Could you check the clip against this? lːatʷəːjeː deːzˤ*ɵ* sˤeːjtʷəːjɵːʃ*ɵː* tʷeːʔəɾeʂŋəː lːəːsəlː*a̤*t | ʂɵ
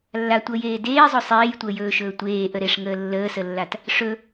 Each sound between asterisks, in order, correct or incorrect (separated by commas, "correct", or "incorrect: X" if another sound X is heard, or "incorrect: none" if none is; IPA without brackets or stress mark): correct, correct, incorrect: a